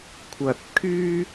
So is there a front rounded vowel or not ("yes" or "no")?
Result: yes